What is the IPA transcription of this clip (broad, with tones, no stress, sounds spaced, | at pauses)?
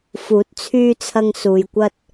f uː˨˥ t̚ t͡sʰ yː˧ t͡sʰ ɐ˧ ŋ s uː˨ j kʷ ɐ˧ t̚